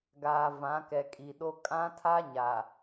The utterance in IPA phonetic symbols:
ɡ aː˨ v ã˨˦ k ɛ˨ kʼ i˨ ɗ o˦ kʼ ã˦ tʰ a˦ ɲ a˨

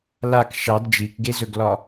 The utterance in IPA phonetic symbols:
l a k ʃ ɑ d d͡ʒ i k ɡ e z ɵ ɡ l ɒ

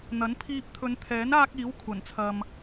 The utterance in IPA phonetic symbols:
n̪ ɐ˨˥ n pʰ iː˧ p̚ t̪ʰ ɵ˨˧ n t̪ʰ ɛː˨˥ n aː˥ k̚ iː˨˥ w kʷʰ ɐ˨˩ n t͡sʰ ɐ˨ m

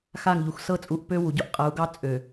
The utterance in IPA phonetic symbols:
x a˦˨ ŋ ʎ u˨ x s ɤ˦ t͡sʼ u˨˦ ʔ p ø˦ w u˨ ɟ o˦ ʔ qʼ ɤ˨˦ u̯ ɡ ɑ˦ t͡sʼ ø˨

